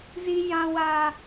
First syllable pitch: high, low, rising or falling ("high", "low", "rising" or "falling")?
high